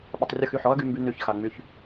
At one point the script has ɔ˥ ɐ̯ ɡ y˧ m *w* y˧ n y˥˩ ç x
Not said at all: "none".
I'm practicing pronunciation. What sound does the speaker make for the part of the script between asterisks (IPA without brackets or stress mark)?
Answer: b